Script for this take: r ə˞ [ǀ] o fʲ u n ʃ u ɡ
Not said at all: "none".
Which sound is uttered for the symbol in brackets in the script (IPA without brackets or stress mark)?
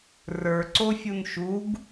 ǀ